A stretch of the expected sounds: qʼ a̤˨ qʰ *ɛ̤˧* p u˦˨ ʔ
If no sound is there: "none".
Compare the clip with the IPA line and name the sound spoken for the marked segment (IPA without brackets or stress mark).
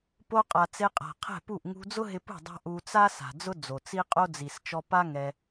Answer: ɛ̤˦˨